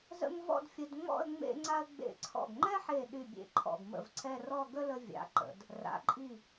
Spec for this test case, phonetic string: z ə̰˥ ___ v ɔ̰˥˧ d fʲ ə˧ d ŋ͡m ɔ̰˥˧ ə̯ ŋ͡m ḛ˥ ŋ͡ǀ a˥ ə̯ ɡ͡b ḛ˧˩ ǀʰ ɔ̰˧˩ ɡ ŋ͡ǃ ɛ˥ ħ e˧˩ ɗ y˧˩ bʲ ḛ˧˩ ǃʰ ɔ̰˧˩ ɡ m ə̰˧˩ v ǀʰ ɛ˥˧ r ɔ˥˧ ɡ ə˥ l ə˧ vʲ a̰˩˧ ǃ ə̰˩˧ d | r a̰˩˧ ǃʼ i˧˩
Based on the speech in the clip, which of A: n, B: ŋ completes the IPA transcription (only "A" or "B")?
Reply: B